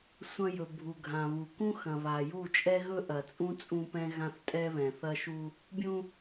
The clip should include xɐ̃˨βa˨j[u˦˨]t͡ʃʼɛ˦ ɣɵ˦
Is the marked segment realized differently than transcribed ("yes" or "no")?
no